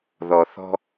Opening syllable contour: low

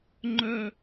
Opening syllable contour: falling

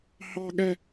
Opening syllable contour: high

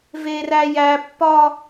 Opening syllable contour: high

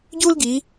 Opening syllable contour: high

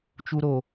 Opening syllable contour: high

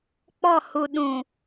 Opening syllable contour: falling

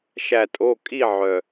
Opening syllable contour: falling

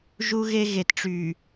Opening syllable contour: high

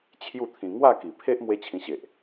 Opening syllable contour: falling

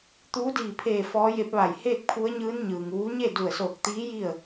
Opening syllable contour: rising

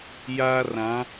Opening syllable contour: high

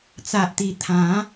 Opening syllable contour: low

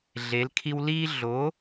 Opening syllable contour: rising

